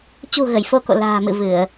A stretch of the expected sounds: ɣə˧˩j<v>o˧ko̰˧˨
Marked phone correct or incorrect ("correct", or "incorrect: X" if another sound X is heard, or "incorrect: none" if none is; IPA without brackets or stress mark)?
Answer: incorrect: f